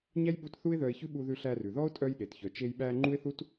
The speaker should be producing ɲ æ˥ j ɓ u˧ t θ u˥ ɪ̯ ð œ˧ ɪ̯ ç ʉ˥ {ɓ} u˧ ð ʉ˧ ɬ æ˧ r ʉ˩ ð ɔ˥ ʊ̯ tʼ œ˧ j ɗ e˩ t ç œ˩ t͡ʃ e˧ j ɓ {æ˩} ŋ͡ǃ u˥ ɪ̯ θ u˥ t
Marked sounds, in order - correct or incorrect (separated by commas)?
correct, incorrect